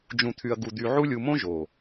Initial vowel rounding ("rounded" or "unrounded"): rounded